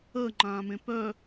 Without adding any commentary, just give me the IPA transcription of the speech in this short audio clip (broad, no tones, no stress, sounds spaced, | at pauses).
əː ŋ͡ǃ ãː m ẽ p œ